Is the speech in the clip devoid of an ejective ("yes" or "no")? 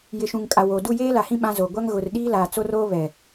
no